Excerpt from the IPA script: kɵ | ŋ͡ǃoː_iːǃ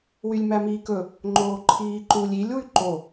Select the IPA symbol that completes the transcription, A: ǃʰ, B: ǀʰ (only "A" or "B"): A